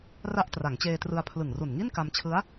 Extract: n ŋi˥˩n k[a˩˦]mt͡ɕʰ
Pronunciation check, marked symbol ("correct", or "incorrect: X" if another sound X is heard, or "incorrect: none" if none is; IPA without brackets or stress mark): incorrect: a˧